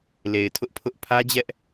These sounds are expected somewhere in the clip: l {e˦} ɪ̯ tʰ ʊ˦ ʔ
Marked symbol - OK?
no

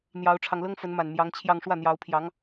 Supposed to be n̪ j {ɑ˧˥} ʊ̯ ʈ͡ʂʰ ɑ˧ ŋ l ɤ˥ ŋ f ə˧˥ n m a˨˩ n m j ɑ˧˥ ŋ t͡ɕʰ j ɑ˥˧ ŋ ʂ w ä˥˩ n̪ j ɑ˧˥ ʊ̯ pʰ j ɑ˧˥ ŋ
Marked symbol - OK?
yes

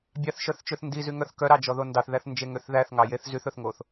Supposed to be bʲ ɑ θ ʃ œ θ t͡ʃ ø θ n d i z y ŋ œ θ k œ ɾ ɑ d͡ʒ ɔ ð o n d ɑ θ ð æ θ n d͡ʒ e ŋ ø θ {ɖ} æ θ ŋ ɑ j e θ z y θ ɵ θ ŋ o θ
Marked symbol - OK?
no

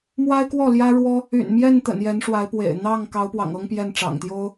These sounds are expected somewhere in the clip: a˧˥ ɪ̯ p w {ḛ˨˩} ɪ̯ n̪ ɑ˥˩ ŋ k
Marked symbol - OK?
yes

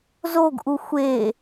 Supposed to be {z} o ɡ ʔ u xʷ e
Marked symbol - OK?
yes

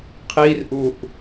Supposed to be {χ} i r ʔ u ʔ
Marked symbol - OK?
no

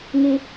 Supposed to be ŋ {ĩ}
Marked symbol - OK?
no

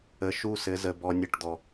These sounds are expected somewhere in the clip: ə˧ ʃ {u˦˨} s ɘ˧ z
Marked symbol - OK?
yes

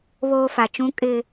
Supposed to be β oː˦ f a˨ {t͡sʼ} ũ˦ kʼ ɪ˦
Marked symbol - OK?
no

